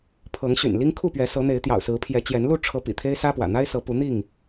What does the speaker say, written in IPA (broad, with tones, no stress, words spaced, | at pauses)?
pʰɤ˨˦ŋɕy̰˨˩nli˦ŋ kʰu˥˨pɥɛ˨˦sɤ˨˦n̪e˨˦ɪ̯ t̪jɑ̰˨˩ʊ̯sɹ̩˨˦pʰjɛ˨˦t͡ɕjɛ˨˦n lu˥˨ʈ͡ʂʰɤ˨˦ pḭ˨˩t̪ʰe˦ɪ̯sä˦pwä̰˨˩ n̪a˦ɪ̯sɤ˨˦pu˨˦n̪i˥˨ŋ